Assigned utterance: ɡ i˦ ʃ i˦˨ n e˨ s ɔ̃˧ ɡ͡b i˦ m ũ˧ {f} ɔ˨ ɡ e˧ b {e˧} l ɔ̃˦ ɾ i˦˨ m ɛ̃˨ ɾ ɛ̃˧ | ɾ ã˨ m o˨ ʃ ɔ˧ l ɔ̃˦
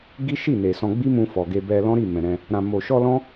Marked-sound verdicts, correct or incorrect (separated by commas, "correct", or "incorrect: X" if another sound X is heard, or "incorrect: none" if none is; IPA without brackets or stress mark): correct, incorrect: ɛ˧